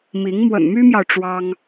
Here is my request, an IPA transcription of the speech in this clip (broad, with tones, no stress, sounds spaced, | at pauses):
m i˧˥ ŋ m w ə̰˨˩ n m y˥ m j ɑ˨ ʊ̯ ʈ͡ʂ w ɑ˥ ŋ